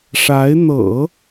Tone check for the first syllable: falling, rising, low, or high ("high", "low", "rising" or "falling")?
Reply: rising